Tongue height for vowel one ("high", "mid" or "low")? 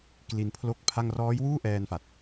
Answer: high